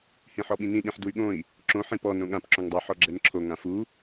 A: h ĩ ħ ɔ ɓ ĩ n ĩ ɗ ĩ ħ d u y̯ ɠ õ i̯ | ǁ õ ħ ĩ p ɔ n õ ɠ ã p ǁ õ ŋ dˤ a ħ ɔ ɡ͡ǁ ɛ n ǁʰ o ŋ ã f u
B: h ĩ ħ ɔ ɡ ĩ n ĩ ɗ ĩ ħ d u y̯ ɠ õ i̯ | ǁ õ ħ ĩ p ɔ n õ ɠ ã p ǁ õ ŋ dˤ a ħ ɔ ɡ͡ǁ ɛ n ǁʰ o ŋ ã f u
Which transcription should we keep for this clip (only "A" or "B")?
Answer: A